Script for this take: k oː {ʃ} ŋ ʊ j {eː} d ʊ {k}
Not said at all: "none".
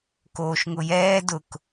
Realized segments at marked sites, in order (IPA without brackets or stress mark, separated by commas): ʃ, ɛː, k